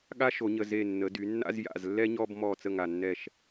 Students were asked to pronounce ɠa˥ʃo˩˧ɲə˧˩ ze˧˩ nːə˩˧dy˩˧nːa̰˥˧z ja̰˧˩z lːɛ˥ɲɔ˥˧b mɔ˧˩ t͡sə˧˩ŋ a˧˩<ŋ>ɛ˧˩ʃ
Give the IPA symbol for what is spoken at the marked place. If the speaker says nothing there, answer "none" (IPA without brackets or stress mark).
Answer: nː